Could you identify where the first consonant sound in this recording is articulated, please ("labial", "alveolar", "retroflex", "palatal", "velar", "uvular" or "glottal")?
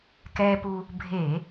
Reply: velar